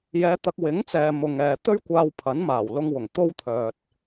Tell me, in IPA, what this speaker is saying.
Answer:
j ɛː˨˧ t̪ ɐ˨ k̚ w ɪ˨˥ ŋ t͡s ɛː˨ m ʊ˨ ŋ ɛː˨ t̪ ɵ˥ ɥ kʷ aː˧ w pʰ ɐ˨˥ n m aː˨˩ w l ʊ˧ ŋ w ʊ˨˩ ŋ t̪ o˥ w t̪ʰ œː˨ t̚

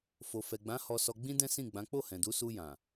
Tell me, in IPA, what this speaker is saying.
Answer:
f o˨ f ɛ˨ ɡ͡b ã˨˦ h ɔ˧ s ɔ˧ ɡ͡b ĩ˦ d ɛ̃˦ s ĩ˦˨ ɡ͡b ã˨˦ k͡p o˦˨ h ɛ̃˨ d u˨˦ s u˧ j ã˨

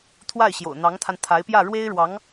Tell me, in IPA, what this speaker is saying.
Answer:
t̪ʰ w a˥˩ ɪ̯ ɕ j o̰˨˩ ʊ̯ n̪ ɑ˧˥ ŋ t̪ʰ a˧ n t̪ʰ a˧˥ ɪ̯ p j ä˥˩ ɻ w e˥ ɪ̯ ɻ w ɑ˧˥ ŋ

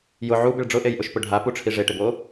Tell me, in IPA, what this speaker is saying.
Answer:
j ʊ ʕ u b ɪ ɭ ɖ͡ʐ ʊ ʔ e j ʔ ʊ ʃ p ʊ ɖʱ a p u ʈ͡ʂʰ i ʐ e ʈ ɪ b o

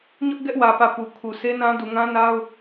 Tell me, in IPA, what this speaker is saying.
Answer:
ɲ ʊ˦ ʔ ɡ ɛ˦ ʔ w ä˨ p ä˨ p u˨ kʰ u˨ sʰ e˦ n ã˦ d u˨ ŋ ã˦ n a˦ ʊ̯

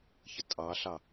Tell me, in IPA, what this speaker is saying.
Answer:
ç ə tʼ ɑ ɬ ɑ

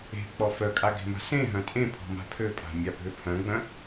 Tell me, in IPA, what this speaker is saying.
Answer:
e̤ k͡p ɔ f œ kʼ a ɡ e̤ m a̤ s ẽ ɦ œ̃ tʼ ẽ pʰ ɔ̤ m a̤ pʰ ø pʼ a̤ mʲ a bʱ ø pʰ œ̃ ɡ͡b œ̃

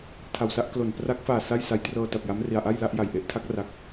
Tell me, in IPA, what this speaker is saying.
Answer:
tʰ a˨˩ w s a˥˩ ʔ k l o˨˩ n p r a˦˥ k̚ f aː˨˩ s a˥˩ j s a˧ j t r ɤː˧ t a˨˩ p̚ j a˦˥ m r i˧ a̯ ʔ a˥˩ j l a˥˩ ʔ j a˨˩ j ʔ e˦˥ ʔ tʰ a˦˥ k̚ r a˦˥ k̚

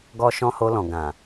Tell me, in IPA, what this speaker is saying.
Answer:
ɡ ɔ˦ ʃ ɔ̃˦ h o˧ l ɔ̃˨ ɡ ã˨

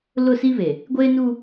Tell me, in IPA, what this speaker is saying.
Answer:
l ʊ˦˨ s i˦ β e˨ | ɡʷ eː˦ n uː˦

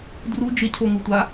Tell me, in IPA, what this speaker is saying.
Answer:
d r u d͡ʒ ɪ cʰ o ŋ u tʷ a

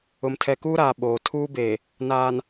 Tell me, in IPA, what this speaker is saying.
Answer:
ʊ˨ m tʰ ɛ˨ k uː˦ ɾ aː˨ ɓ oː˨ tʰ uː˦ b e˨ | n aː˨ n

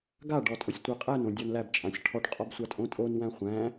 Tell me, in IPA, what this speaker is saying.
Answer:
ɡ a ɖ ɔ tʼ o sʲ tʷ a qʼ æ n õ dʲ ɒ n l æ b t͡ʃʼ ã sʲ ʈʰ ɔ ʈ qʼ ɒ b sʷ a tʼ õ tʼ o n w æ̃ χʷ æ̃

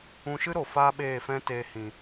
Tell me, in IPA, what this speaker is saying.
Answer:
ũ˧ ʃ ɨ˦ ɾ o˨ f aː˦ ɓ eː˦˨ f ɛ̃˦ t eː˧ h ĩ˨

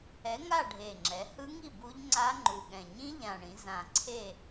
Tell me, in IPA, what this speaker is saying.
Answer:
ɛ˨˥ ŋ a˥˨ ɖʱ e˨˩ ŋ͡ǁ ɛ˩˧ h ɯ˦˥ ŋ i˥˨ b u˦˥ ʎ ŋ͡ǀ a˦˥ ŋ͡ǃ u˨˩ ɠ ɛ̃˨˩ ɲ ĩ˦˥ ʎ ã˨˩ ɳ ĩ˩˧ z ã˨˩ ǀʰ e˥˨

